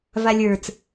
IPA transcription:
valʲə˞t͡s

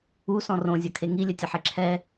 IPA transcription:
usɔ̃ rõzʲɐkʰe ŋilʲɘtʲɐħe ǁʰɛ

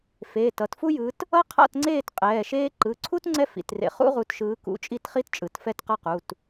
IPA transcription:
feː˩˧˩tʌ˨˦tfu˥jɯ˨˦t | ʌ˥qʰa̰˥˨tŋ͡ǀeː˥˨t qʼɛː˩˧˩ʃeː˥ ǃɯ˩˧˩ǀʰu˥t ŋ͡ǀɛ˥fḭ˩˧˩trḛ˨˦ χṵ˥ʁu˨˦tʃɯː˨˦ kṵ˨˦t͡ʃʼi˥˨tχi˥tt͡ʃʼɯ˩˧˩t fɛ˥˨tqʌ˥˨qu˩˧˩t

